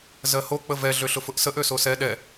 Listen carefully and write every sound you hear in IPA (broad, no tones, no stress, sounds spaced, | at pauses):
z ɜ h o k͡p ə v ɛ ɮ ø ɬ ʊ f ʊ ʔ s ə ʔ ø s o s ɛ ɗ ɛ